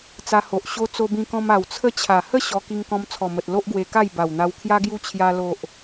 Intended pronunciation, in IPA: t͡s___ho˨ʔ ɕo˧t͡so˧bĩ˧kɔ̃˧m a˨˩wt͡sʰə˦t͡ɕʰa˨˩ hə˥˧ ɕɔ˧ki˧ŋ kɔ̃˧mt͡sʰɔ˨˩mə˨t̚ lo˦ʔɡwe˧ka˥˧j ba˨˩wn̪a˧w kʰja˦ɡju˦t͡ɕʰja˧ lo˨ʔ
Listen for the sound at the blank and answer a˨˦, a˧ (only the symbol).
a˧